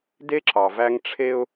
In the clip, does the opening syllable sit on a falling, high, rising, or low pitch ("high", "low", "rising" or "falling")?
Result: high